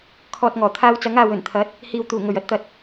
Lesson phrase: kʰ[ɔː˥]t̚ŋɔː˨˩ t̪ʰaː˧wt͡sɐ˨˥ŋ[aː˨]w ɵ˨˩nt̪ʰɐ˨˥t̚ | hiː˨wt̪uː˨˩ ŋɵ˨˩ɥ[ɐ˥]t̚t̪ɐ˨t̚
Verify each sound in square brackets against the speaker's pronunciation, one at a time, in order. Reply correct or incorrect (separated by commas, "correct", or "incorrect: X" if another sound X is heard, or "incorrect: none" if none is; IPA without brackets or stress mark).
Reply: incorrect: ɔː˨, correct, correct